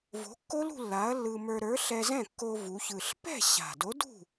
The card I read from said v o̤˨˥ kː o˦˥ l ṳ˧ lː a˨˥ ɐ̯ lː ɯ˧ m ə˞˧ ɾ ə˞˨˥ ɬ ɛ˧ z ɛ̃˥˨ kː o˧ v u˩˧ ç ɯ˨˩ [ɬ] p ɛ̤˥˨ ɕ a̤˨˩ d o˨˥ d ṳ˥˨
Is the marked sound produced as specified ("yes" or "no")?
yes